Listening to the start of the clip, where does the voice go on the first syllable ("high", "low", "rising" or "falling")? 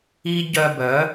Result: high